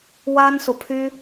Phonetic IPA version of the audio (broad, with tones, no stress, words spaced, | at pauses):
wa˥nsu˨pʰy˥